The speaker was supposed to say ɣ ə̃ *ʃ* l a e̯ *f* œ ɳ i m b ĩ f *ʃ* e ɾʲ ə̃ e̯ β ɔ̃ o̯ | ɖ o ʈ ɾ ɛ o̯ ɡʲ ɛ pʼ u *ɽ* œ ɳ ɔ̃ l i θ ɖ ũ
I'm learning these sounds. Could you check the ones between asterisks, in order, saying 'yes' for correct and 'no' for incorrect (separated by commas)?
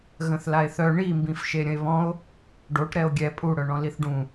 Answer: no, no, yes, yes